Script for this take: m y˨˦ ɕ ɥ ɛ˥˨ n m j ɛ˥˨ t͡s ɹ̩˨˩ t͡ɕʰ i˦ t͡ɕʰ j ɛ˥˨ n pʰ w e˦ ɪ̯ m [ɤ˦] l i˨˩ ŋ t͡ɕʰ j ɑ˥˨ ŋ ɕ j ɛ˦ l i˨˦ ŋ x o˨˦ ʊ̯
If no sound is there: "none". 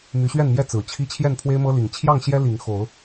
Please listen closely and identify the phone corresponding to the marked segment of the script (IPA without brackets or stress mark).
ɤ˦